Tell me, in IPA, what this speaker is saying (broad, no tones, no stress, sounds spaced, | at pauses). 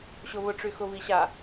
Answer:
ɕ ʊ β ʊ ʈ͡ʂ y x ʊ β i ɕ a